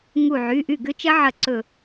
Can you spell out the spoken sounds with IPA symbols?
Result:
ŋ u˧˩ ʕ y˩˧˩ ʔ y˥˩ ɡ ʏ˦˥ t͡ʃ ɐ˦˥ ʕ ɐ˧˩ ǀ ɵ˧˩

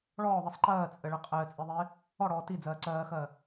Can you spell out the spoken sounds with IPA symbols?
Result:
ɭ ɔː ðˤ i sˤ ǃ ɜː t͡sʼ ɘ ɭ ɘ qʼ ɘː t͡sʼ i ðˤ eː | ɔ ɽ ɔː t i d͡z ɜː ǀ ɜː x ɜː

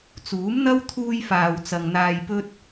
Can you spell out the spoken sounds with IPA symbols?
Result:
t͡s uː˨˥ m n̪ ɐ˥ w t̪ʰ uː˧ j f aː˨ w t͡s ɐ˨ ŋ n̪ aː˧ j p ɵ˥ t̚

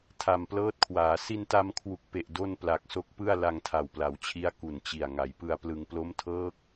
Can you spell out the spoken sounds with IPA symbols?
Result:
tʰ a˨˩ m p l ɤː˦˥ t̚ kʰ w aː˩˦ s i˧ n t a˧ m kʰ w u˨˩ k̚ p e˨˩ ʔ d o˥˩ n p l a˨˩ k̚ s o˦˥ k̚ p ɯ˥˩ a̯ l a˧ ŋ tʰ a˨˩ w p l a˩˦ w t͡ɕʰ i˦˥ a̯ k u˨˩ n t͡ɕ i˨˩ a̯ ŋ a˩˦ j p ɯ˧ a̯ p l ɯ˧ ŋ p l o˦˥ m tʰ ɤː˦˥ k̚

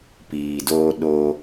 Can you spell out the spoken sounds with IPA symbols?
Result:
p iː˨ d oː˧ ɗ o˧

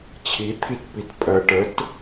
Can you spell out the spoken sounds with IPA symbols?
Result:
t͡ɕʰ i t̪ʰ i t p i t pʼ ɜ ʈ ə t

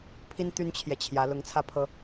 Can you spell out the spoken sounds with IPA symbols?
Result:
pʰ i˥ n t̪ y˥ n t͡ɕʰ j ɛ˨ t͡ɕʰ j ä˧˥ l ʊ˧˥ ŋ t͡sʰ ä˥˩ pʰ ɤ˥

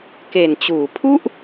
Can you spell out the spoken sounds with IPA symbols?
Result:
k e˨˩ n t͡ɕ uː˩˦ pʰ u˥˩ ʔ

